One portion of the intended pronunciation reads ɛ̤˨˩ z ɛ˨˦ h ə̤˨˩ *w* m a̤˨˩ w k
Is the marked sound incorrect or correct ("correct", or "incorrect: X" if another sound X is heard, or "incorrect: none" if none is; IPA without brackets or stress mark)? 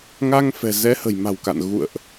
incorrect: j